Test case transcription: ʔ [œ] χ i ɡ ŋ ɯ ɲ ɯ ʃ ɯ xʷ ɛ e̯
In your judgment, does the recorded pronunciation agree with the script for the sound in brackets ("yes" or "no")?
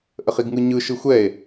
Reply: no